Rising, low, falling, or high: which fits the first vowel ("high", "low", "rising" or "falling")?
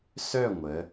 falling